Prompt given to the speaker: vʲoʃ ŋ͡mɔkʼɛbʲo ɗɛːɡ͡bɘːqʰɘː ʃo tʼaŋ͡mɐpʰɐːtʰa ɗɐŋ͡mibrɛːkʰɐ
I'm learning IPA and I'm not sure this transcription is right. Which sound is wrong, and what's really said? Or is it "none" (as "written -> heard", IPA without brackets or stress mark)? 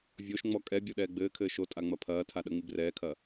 qʰ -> kʰ